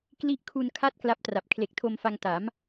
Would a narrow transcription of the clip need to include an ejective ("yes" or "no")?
no